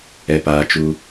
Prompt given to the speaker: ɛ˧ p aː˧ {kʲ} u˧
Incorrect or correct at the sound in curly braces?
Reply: incorrect: t͡ʃ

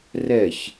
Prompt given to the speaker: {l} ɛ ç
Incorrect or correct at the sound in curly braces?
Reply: incorrect: r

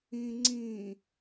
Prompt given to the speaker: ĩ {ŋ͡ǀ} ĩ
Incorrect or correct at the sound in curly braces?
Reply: correct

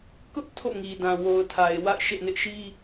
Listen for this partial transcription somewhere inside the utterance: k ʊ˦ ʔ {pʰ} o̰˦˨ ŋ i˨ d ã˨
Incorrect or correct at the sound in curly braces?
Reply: incorrect: tʰ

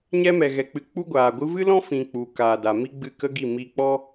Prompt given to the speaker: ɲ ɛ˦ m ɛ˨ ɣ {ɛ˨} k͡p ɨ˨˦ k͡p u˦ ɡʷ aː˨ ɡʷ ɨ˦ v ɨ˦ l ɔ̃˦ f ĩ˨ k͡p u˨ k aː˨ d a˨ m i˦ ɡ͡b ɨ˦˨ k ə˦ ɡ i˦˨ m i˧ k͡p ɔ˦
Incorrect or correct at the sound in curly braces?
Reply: correct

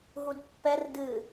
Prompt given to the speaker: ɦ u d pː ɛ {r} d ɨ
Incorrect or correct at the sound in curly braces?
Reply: correct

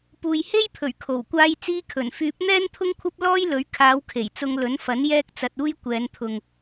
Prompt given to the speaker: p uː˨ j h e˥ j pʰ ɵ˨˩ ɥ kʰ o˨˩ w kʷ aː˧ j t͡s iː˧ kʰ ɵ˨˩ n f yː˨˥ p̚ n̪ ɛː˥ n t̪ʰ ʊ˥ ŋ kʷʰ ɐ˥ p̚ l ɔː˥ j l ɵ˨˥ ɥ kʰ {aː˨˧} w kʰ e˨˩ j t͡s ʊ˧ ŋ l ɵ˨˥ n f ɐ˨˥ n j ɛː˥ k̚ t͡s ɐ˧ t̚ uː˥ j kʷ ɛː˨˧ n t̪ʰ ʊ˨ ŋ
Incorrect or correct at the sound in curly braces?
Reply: correct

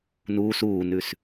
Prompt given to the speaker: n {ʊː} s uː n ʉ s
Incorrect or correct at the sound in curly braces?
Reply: incorrect: uː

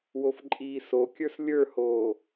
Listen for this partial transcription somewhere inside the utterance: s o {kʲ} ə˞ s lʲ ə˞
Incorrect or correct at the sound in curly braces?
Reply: correct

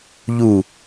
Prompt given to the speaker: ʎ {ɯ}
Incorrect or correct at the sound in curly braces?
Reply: incorrect: u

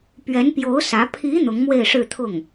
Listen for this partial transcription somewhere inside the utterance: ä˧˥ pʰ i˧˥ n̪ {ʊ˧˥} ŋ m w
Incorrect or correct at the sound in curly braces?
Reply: correct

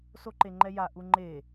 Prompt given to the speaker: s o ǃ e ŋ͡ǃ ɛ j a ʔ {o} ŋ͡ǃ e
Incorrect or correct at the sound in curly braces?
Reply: incorrect: u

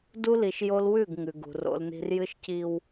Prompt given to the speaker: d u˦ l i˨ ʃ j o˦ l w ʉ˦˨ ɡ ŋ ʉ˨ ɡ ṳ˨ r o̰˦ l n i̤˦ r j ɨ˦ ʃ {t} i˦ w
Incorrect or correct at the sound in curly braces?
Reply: incorrect: c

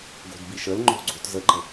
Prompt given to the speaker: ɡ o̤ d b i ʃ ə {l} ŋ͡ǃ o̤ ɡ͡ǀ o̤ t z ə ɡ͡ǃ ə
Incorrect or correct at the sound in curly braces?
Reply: correct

